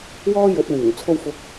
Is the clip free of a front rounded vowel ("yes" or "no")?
no